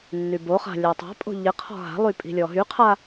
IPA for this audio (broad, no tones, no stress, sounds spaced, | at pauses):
nː y b o χ a̤ lʲ a tˤ a̤ pʼ o̤ ʎ ɪ qʰ ɔ̤ ɦ a̤ lˠ y pʼ i̤ lʲ ɔ ɦ y qʰ a